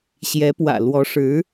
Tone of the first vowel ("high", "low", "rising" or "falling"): rising